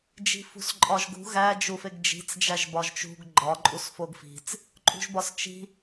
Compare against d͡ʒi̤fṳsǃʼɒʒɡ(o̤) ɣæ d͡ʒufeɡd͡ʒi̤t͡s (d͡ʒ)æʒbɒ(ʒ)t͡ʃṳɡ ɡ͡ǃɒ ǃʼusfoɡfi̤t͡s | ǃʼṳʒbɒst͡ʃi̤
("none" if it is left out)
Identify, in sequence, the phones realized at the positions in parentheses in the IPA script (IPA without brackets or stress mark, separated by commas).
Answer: ṳ, d͡ʒ, ʒ